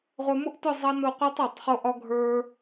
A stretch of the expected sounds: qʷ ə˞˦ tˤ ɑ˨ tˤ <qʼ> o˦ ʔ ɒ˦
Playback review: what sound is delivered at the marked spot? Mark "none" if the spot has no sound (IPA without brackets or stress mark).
χ